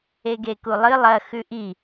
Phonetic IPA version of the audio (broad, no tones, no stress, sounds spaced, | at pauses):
e ɡ e k u lˠ ɨ lˠ ɐ x ʉ ʔ i